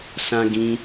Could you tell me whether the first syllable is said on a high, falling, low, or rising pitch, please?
high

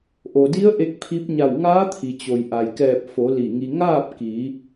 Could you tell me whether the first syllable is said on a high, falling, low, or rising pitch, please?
low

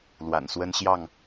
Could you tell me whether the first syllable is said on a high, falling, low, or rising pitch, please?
low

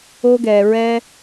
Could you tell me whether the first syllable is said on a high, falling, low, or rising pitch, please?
high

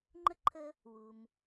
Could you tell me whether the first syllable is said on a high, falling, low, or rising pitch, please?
high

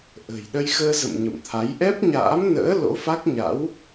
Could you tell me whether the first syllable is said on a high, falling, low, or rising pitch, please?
low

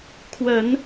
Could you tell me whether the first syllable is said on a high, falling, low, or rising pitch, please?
low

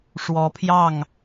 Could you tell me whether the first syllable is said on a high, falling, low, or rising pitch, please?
rising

